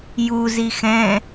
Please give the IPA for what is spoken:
j u z i x ɛ̃

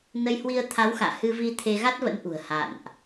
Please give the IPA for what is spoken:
n ə˧ j h w i˧ ə̯ t̪ʰ a˨˦ w x a̰ː˧˨ h ɨ˧ v i˧ t̪ʰ e˧ ɣ a˦˥ t̚ v ə̰˧˥ n ʔ ṳ˨˩ ə̯ h a̰˧˨ n ʔ

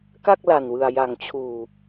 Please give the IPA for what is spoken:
k a˥˩ k̚ l a˨˩ n w ɯ˨˩ a̯ j a˩˦ ŋ t͡ɕʰ uː˨˩

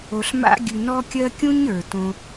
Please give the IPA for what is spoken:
o˨ ɬ m a̰˧ ɡʲ ʉ˨ n ɔ˧ kʲ ɜ˧ kʲ ũ˦ ɲ ə˞˨ t õ˧

